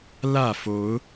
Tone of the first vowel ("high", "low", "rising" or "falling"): falling